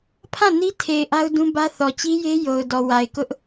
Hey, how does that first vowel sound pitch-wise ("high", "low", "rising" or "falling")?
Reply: falling